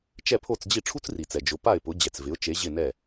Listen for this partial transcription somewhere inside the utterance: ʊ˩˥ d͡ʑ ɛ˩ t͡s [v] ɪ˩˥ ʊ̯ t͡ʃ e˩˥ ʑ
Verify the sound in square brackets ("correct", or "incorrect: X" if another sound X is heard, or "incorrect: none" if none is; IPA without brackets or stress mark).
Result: correct